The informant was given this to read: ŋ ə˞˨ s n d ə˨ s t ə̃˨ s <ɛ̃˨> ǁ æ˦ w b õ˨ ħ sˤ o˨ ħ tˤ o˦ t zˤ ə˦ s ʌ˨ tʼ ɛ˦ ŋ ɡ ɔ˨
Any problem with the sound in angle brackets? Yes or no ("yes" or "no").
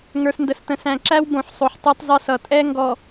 yes